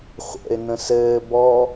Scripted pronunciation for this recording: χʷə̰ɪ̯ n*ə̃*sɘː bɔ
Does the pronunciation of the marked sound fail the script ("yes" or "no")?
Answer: no